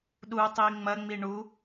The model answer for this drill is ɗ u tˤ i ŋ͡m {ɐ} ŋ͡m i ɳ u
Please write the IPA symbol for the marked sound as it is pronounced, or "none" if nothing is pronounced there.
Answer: ɐ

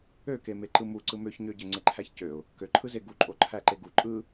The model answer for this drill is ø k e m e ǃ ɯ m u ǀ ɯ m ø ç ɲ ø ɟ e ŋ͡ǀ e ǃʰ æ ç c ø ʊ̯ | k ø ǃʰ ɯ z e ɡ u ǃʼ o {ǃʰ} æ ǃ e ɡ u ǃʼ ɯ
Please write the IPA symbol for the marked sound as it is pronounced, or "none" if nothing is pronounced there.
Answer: ǃʰ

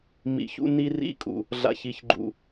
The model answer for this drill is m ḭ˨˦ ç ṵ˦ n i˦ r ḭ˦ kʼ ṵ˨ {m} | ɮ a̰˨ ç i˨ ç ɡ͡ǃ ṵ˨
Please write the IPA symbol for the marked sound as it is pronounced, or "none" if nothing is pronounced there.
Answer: none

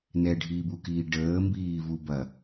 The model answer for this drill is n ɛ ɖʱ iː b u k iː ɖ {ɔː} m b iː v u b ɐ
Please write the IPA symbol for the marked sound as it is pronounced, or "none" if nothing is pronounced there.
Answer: əː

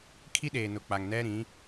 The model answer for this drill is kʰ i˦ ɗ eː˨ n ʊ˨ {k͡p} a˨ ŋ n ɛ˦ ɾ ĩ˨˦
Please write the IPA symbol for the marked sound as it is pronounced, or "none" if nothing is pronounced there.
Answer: k͡p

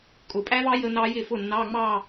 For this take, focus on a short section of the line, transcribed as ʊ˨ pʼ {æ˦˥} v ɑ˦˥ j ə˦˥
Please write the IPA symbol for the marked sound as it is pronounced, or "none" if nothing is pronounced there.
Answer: æ˦˥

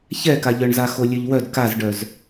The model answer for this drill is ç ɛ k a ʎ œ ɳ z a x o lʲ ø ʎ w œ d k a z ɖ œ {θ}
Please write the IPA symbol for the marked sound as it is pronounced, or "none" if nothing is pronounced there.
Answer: z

